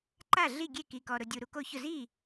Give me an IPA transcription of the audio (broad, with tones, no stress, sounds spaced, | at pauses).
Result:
ǃ a˥˩ ɮ i˥˩ ɡʲ e˥˩ k i˨ k ɔ˨ ɾ ʊ˨ dʲ u˨ ɾ u˨ k o˥˩ ç ʊ˥˩ z i˥˩